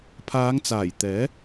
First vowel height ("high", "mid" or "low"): low